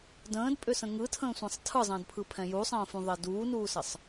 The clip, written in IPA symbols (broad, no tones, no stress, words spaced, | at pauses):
də̃ːdpʼʏsə̃ ŋɯtʰə̃ːsʷɛ̃sˤ tʰɯzˤə̃ːdpʰɯpʰɛ̃ jusˤə̃ːfũðˤɛ duːnuːsʌsˤ